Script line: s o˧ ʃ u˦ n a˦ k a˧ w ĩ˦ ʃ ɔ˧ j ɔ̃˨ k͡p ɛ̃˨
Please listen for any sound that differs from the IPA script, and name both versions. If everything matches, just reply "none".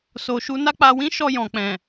k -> k͡p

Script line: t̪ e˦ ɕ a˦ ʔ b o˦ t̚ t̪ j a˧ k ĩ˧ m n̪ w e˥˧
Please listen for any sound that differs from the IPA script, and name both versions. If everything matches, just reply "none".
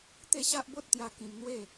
none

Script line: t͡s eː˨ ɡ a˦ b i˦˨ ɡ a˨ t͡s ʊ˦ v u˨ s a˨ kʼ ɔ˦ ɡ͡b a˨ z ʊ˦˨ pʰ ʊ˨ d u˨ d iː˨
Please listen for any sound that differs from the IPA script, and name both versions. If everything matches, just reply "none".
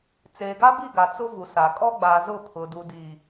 none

